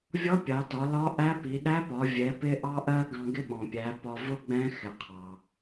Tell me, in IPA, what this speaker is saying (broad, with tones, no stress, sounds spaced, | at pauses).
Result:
vʲ ɔ˧˥ pʲ ɑ˩˧ t ɒ˩˧ l ɒ˧˥ ʔ æ˧˥ p i˩˧ ɗ æ˧˥ p ɒ˩˧ vʲ ɛ˩˧ p ɪ˧ ʔ ɑ˧ ʔ ɜ˧ ɡ ɑ̃˧ ɡ ɪ˧˥ ɓ ɔ̃˩ pʲ æ˩˧ p ɒ˧ v ʊ˥ ɡ͡b ɛ̃˧˥ x ɪ˩ qʰ ɑ˩